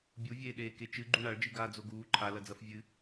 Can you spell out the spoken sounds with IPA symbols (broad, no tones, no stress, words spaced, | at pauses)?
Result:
bʲuvʲeːɗeː ket͡ʃɨ ɡ͡ǃuɳaɭd͡ʒɨ ɡaːd͡zoɡuː ǃʰalɐd͡zɐf vʲɨ